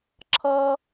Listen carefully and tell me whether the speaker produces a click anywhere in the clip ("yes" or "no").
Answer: yes